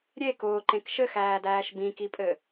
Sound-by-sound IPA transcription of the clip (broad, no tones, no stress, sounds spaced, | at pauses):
ɾʲ e k ʊː ǃ ẽ k ʃ ɘ x æː d æː ʃ b ĩ k i pʼ ɘ